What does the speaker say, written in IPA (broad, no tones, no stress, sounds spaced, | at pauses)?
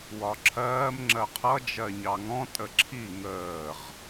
w ɒ ǁʰ ɜː m ŋ͡ǁ ɜ qʰ ʌ d͡ʒ ɜ ɲ ɑ ŋ ɔ̃ tʼ ə ǁʰ i ŋ əː ʁ